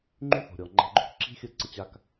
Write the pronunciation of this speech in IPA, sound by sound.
ŋ͡ǃy˦θo̤˨ɾʲɔ˨ ŋ͡ǃa̤˧ɡ͡ǃo˦k ǁi̤˦xʲə˦˨ ǀə˧t͡ɕa˧k

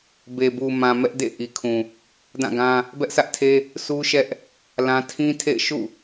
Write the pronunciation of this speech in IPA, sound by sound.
be˨bu˨mã˨ mɛ˦ʔdḛ˦˨ ʔi˨kʰũ˨ | dã˦˨ɡã˦ | bɛ˦ʔsʰä˦ʔtʰe˦ | sʰu˦ʃɛ˦ʔ | lã˦ tʰĩ˦tʰḛ˦˨ɪ̯ ʃṵ˦˨

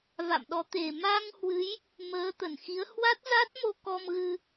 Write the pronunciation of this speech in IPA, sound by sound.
va̰˧˨mɗɔ˨˦t̪e˨˩ ma˧ŋhwɨ˨˦j | məː˨˦t̪ə˧˩nxi˨˦ə̯ hwa˦˥t̚za˦˥t̚mo˧ kɔ˧mɣɨ˧

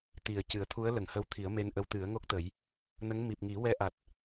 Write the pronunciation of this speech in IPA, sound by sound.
t̪i˨˩ə̯cɨ˨˩˦ə̯t̪ʰu˧˥ə̯ lə˨˩˨ŋhə˧˥wt̪ʰi˨˩˦ə̯ me˧nʔə˧˥w t̪ɨ˨˩˦ə̯ŋo˦˥k̚t̪ə˨˩˦j | nə˧˥ŋ mi˨˩p̚ŋi˨˩˦wɛ˧ʔa˨˩t̚

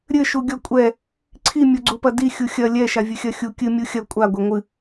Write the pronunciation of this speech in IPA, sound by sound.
ɾʲɘ ʃuɡʲɔkʷʼɛ | ǀʰi mʲoɡ͡ǀupɐdi xʲuxʲɐ lʲɛ ʃavʲɨxʲɐxʲu kʲɨ mʲuxʲɐ kʷʼa ɡʷɛŋʷɨ

